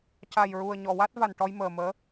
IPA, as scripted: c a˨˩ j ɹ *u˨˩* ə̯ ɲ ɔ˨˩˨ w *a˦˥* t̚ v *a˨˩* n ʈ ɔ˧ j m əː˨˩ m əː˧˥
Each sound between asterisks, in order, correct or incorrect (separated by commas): correct, correct, correct